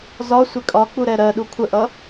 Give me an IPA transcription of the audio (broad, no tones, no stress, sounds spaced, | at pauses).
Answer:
z ɒ sʷ ɪ kʼ ɒ k͡p u ɾ ɛ ɾ ɜ ɗ u kʷʰ ə ʔ ʌ